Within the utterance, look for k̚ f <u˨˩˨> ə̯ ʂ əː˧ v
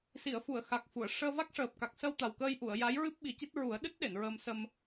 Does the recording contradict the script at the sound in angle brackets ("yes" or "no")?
no